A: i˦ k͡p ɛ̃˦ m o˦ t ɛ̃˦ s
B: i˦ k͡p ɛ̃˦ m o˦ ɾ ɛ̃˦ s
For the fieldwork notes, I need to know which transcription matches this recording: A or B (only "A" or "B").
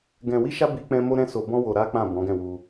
B